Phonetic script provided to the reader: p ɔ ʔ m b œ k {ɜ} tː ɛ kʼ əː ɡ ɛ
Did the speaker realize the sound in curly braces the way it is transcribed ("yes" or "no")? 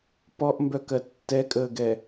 yes